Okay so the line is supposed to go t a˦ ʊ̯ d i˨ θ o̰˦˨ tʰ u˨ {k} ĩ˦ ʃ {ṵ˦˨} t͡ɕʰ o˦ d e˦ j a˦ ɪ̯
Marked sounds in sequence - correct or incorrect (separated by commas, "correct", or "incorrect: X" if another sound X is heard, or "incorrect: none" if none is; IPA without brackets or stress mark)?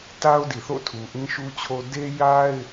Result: incorrect: ʔ, incorrect: u˦